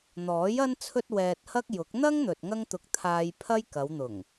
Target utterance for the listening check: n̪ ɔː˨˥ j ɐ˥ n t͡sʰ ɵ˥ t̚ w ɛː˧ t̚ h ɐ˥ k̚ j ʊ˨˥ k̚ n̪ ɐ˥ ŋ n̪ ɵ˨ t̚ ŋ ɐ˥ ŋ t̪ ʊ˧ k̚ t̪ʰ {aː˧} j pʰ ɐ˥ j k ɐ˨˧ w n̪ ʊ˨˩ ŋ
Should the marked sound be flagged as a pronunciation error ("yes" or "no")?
no